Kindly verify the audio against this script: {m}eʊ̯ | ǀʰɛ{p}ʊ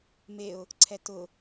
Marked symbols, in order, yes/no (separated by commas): yes, no